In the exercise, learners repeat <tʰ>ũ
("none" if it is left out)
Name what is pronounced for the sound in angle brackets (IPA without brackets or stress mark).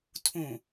tʰ